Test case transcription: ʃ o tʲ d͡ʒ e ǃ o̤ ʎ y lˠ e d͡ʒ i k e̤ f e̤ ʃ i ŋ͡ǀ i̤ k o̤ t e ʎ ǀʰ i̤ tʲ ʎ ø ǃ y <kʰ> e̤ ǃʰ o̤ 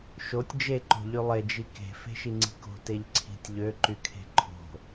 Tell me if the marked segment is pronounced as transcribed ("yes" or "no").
yes